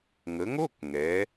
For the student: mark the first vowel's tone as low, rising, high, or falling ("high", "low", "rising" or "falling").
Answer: rising